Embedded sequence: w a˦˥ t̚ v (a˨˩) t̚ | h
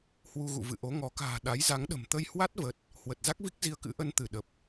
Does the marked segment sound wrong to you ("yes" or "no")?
yes